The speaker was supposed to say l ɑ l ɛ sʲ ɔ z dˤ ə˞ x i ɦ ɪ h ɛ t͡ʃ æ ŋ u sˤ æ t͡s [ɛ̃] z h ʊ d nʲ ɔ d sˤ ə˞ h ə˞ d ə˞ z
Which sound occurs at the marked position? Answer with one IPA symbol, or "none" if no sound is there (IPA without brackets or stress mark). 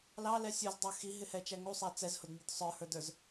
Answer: ɛ